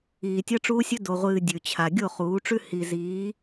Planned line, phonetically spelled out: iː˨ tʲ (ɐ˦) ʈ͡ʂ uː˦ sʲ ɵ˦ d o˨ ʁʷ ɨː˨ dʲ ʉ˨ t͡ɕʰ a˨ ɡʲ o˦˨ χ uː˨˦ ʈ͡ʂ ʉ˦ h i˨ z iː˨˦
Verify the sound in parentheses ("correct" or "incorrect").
correct